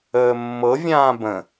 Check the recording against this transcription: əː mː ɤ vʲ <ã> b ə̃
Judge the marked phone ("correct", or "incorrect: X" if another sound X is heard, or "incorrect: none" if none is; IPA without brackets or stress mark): incorrect: ãː